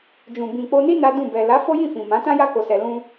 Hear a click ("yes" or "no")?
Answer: no